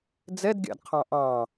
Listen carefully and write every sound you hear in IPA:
d͡z ɛ d ɡʲ ɑ̰ d qʰ ɑ̃ ʔ ɑ̃

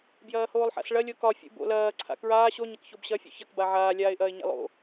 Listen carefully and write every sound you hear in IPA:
b j ɐː h oː lˠ ħ a̰ s ɭ ɐ lʲ o k ɒ fʲ ṵ b o̰ l ɐː ǀʰ a̰ k ɹ aː ɕ o ɲ ɐ k ç o b ɕ ɐ fʲ ṵ ç ɐ k b a ʕ aː lʲ aː ɪ̯ ʔ ɐː ɪ̯ ɲ a̰ lˠ o̰

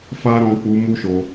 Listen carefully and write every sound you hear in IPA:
f a˦ ɾ ɔ̃˧ k͡p u˧ m u˦ ʃ o˧

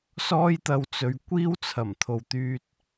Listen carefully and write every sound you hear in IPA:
s ɔː˥ j t̪ ɐ˧ w t͡s ɵ˨˧ ɥ kʷ iː˥ w t͡sʰ ɐ˨˩ m t̪ʰ o˨ w t̪ yː˧ t̚

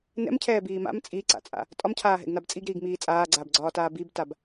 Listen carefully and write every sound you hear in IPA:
n ɛ̰ m cʰ ɛː b iː m a̰ m t͡sʼ i ǀ a̰ t͡sʼ a̰ | tʼ ɒ m cʰ aː ɦ ɛ̰ ɡ n a b t͡sʼ i ɡ ɾ iː ɡ m iː t͡sʼ aː ɡ͡ǀ aː b ɡ͡ǀ ɒː t aː b i b t a b

